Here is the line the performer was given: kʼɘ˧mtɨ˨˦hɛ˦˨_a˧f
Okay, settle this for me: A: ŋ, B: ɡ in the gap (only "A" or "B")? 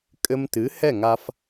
A